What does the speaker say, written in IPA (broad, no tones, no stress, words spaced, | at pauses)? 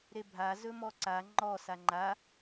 ɾebʱa zɵmɔǀa ŋ͡ǃɔ saŋ͡ǃa